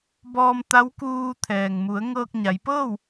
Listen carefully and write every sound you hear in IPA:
bɔː˧mt̪a˧˥wkuː˧ t̪ʰɛː˩ŋmu˩˧ə̯ ŋɤː˧k̚ɲa˩˧j pɤː˥˨w

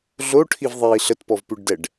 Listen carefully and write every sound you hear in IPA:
ɮoʈʰivðˤiː ɬətpɔvpʉɖdɛɖ

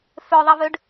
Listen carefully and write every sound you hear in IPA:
føðˤivøɖ

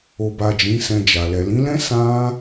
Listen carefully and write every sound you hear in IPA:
o˨ba˨ d͡ʒĩ˨˦sɛ̃˧d͡ʒa˨ lɛ˨lĩ˨˦lɛ̃˦ sã˦

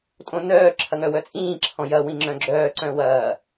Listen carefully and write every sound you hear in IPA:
tʼõnœː ǁʰɐŋœwœt͡sʼĩː ǁʰɔ̃jɐ wĩŋ͡ǁœ̃ɡ͡ǁœː ǀœ̃wɐː

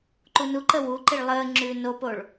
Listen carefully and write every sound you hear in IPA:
ǃunuǃə wuǃiɭ lˠəː ŋ͡ǁʉːnopoɭ

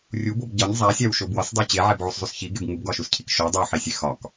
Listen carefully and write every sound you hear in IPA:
rʲubob ɟɒɲ zˤæsʲæwʃo bwɒsdˤo t͡ɕeʕebʕuszˤus çiɡeb ŋubɡɒʃuscʰik ʃo dˤowħisʲe xɒk

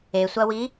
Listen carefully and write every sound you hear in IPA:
esʷɐwi

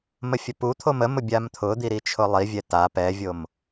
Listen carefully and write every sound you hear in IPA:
məfʲəput̪ʰom əmʊ bʲamt̪ʰʊd̪i ɾit͡ʃʰʊlˠivʲɛ ta pɛvʲom

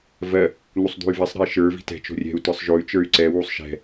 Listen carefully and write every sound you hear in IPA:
vɜ | n̪usˤd̪ṳy̯vɛsˤ ɾɛ̤i̯ʃə˞ vi̤tɛ̤ t͡ʃo̤rʲɛ̤u̯ tə˞sˤʒoy̯ t͡ʃə˞y̯ǀɛ wusˤʃɛ̤

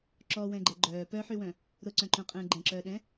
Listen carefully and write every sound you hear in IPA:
ǁɔwɛ̃ɡ͡ǃɛ ɡ͡ǃœː pœħywœ̃ | ɾʊǀœ̃ǃœ̃qʼɛ̃ː ɡ͡ǃɛ̃ǁœːɗɛ̃

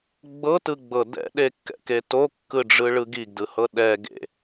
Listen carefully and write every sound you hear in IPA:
ɡ͡bɤtɯɡ͡bɤ dɛ̰ɗekːɛ̰ke tokːɯɖ͡ʐɯɭɯ ɡiɡdɯhɤ ɗɛ ɡḛ

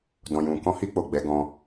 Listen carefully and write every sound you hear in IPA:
dɔ̃˨jũ˨ kɔ̃˧hi˧k͡po˨ ɡ͡bɛ˨˦ɡɔ̃˧

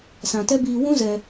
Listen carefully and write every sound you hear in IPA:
sã˨tɛ˦biː˧ wũ˦ zɛ˧

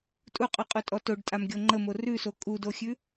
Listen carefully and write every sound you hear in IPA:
tʼuqʼʉqʼutʼɔ toɖtʼamɡʲo ŋ͡ǃəmo rʉso kʼudoxʲʉ

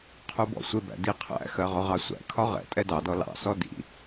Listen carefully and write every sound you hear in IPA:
qʰubɔ̰sʷɪbæ̰ diqʰæ̰xɜ ʁʊʁɑsʷæ̰kʰɒ ʁɛ̰ tʼɛdɑdɔ lɑ̰sɔ dḭ

